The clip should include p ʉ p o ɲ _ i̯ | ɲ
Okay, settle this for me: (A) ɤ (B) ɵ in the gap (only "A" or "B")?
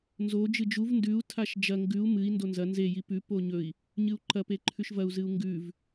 B